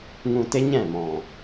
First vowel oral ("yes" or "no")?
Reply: no